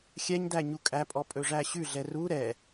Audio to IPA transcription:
xʲ ɛ ɲ d æ ɲ u kʼ æ pʼ ɔ pʼ ɵ ʐ æ ɕ ʉ ɮ ɛ r u ɾ ɛ

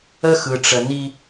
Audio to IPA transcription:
ə˦ x ɯ˨ ʈ͡ʂ ə˨ n i˦

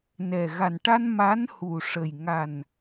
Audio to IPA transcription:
n ɛ˨˩ ɣ a˨˩ n ʈ a˧ n m a˧˥ n h u˨˩ ʂ ə˨˩ j ŋ a˨˩ n

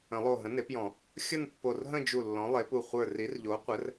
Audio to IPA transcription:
ə̃˨˩˦ lˠ o˧˩ ɦ ə̃˩˥ n e˩˥ p j ɔ̃˨˩˦ | xʲ ə˥˧ n pː o˧˩ r ɦ ə̃˥˧ d͡ʒ u˧˩ lː ɔ̃˩˥ lˠ e˩˥ p u˧˩ χʷ ə˞˧˩ r i˩˥ r ʎ o˩˥ qʷ ɘ˩˥ r

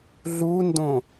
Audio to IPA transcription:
ɮ u n d õ

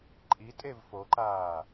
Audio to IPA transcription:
ǃʼ i tʼ e v f o ǃ aː

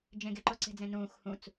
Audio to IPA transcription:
d͡ʒ ẽ ɡ e ǃ o ǀ e̤ d͡z ẽ n ũː x h ũ t͡s

